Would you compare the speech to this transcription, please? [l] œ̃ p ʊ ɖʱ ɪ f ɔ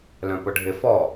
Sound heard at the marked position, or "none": l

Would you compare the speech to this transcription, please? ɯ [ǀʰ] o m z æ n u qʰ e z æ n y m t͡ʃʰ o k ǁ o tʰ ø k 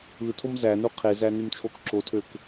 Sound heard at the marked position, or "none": tʰ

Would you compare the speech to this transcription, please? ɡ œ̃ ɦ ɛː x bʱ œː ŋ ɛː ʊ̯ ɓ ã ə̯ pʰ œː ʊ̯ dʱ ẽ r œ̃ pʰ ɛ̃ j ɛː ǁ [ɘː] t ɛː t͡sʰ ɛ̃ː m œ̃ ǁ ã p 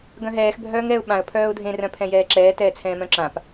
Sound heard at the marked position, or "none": ɛː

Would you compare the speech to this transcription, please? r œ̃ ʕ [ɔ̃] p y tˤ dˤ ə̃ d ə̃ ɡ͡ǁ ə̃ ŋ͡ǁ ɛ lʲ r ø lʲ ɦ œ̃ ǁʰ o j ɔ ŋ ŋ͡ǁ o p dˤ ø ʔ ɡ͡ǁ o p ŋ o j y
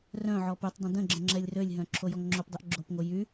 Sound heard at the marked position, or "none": ɔ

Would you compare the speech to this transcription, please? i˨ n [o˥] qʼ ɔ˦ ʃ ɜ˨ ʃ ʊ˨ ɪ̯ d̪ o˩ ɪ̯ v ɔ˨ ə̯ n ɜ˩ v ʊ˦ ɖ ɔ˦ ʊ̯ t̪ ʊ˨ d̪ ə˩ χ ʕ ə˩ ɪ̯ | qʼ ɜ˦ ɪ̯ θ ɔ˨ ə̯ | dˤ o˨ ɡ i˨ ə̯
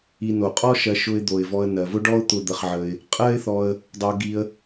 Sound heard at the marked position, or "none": o˩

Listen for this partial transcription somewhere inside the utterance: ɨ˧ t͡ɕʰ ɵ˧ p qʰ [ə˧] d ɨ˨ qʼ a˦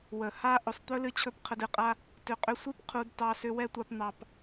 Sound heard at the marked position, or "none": ə˧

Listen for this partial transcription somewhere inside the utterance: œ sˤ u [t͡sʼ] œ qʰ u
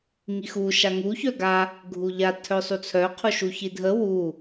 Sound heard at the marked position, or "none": t͡sʰ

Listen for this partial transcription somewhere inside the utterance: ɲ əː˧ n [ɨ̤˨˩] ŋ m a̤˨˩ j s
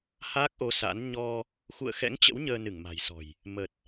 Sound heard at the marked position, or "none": ɨ˧˩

